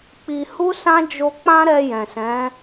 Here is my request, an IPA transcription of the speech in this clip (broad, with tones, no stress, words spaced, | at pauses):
k͡pi˧ hu˦sã˦ d͡ʒo˦ k͡pã˦ɾɛ˧ jɛ̃˨sɛ̃˨˦